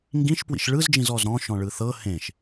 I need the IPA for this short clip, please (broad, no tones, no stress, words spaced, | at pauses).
ŋɡĩʃ pwḭʃɭɯzd͡ʒĩz ɔzɾɔ̃ ʃɔ̃ɭɯθɤ hẽʃ